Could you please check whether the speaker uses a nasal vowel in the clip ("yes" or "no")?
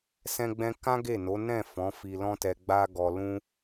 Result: yes